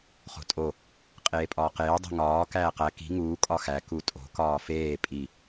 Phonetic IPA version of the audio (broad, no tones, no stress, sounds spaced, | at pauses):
χ o̤ tʼ o | qʼ eː pʼ ɒː q eː dˤ e̤ ŋ ɒː k æː q æ k i̤ ŋ uː kʼ ɒ x æ k u tʼ o̤ k ɒː f eː pʼ i